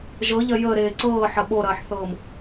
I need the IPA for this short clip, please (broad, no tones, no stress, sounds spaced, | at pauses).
ʒ ɤ ʎ ɐ j əː ɾ eː ǀ ɤː ħ ɐ ɓ o ɾ ɐː ħ θ ɤː m